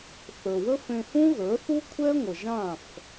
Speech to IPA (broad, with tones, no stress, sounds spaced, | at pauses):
θ ə˞˩ w ə˥ f ẽ˧ h ũ˥ ɣ ə˞˩˥ θ u˥ kʷʰ ɛ˥ ŋʷ ə˩ ʒ ã˥˩ f